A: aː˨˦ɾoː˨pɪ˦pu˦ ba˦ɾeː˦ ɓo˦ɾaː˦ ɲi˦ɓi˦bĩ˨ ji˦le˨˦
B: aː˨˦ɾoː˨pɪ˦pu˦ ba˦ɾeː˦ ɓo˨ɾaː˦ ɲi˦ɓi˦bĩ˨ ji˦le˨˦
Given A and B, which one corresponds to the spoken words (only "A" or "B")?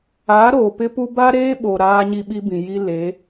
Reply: B